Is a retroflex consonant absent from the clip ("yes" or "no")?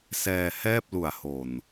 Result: yes